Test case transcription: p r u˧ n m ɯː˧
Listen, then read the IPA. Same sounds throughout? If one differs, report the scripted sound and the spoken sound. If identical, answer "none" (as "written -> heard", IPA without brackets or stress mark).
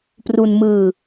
none